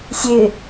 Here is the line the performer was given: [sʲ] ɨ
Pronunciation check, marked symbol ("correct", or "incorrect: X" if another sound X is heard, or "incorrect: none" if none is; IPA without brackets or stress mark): correct